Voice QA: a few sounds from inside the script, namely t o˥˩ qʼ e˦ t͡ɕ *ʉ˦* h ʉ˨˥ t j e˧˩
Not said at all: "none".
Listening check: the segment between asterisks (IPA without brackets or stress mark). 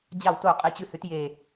ʉ˦